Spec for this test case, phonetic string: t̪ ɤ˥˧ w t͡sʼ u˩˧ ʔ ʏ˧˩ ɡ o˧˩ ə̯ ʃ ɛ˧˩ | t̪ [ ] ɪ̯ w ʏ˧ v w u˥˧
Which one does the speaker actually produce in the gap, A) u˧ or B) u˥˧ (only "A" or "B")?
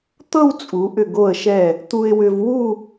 A